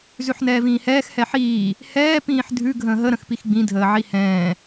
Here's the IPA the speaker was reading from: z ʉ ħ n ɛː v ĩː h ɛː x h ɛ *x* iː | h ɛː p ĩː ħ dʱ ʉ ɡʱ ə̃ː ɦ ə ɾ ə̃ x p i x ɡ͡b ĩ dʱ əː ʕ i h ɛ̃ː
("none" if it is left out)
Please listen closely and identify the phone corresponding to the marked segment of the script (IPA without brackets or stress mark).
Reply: ħ